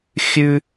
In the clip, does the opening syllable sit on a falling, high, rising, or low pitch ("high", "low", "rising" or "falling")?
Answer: high